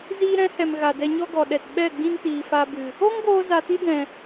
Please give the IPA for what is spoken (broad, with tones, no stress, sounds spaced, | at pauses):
z iː˧ ɾ ɛ̃˨˦ h ɛ˨ m ɣ a˨ d ɛ˧ ɲ ɔ˦ ɡ ɔ˨ ɗ ɛ˨ t ɓ ɛ˦˨ ɡ͡b ĩ˦ n t iː˨ f a˧ b ɨ˨ | o˦ ŋ ɡ oː˧ z a˧ t i˦ d ɛ̃˨